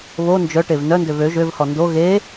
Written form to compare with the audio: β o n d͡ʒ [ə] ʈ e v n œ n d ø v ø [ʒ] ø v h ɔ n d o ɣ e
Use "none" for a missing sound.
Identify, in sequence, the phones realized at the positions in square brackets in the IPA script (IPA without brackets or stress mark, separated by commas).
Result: œ, ʒ